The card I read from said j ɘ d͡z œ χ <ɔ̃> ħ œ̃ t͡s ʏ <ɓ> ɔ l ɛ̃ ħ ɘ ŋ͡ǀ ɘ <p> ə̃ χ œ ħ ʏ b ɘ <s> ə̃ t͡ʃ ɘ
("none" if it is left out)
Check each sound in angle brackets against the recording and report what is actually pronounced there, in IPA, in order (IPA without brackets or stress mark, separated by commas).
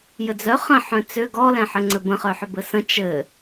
ə̃, ɡ, b, s